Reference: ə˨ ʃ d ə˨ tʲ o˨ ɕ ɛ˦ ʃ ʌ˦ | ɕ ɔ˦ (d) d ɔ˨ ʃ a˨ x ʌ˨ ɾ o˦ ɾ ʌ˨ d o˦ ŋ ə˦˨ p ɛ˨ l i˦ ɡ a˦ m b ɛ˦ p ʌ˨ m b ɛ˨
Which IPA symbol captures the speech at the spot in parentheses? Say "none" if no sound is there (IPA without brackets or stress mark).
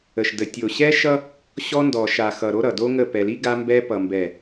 n